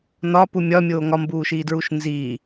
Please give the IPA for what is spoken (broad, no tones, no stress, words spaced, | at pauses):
nɒpu mʲɒmʲoː ŋɒmbuːʃiːdɹuʃ nzi